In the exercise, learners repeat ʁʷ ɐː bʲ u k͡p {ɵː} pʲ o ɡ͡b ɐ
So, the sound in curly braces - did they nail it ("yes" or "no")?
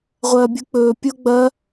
yes